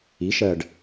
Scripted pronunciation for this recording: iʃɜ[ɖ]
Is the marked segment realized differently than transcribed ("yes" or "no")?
no